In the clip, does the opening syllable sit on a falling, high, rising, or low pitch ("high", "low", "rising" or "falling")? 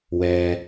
low